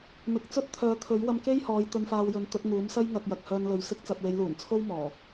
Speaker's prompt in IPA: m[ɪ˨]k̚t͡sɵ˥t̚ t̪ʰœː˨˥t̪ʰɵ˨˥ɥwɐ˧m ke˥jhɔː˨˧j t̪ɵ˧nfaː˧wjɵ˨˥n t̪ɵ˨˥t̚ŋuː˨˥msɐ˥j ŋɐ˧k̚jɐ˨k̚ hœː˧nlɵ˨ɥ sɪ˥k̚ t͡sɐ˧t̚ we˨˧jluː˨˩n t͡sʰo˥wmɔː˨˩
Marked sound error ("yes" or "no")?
yes